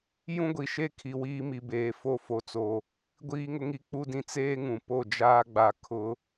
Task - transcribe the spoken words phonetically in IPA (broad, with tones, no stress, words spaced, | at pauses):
jũ˦ɡʷi˨ʃe˦ kʰi˨wiː˦mi˨beː˨ fo˦˨fo˨t͡so˨ | ɡʷiː˦ŋʊ˦ŋi˦ k͡pu˦dĩ˦ t͡seː˦ŋũ˨ po˦˨d͡ʒaː˦ɡ͡ba˨ kʰʊ˨˦